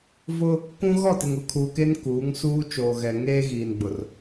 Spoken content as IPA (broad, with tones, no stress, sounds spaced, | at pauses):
v ʊ˦ | k ũ˦ ɣ ɔ˦˨ t ɪ˨ ŋ ʊ˨ kʰ uː˨ k e˦ n k uː˨˦ ŋ s uː˦ t͡ʃ oː˨ ɣ ɛ˨ ŋ eː˦ ɣ iː˨ n ɡ͡b ʊ˨ r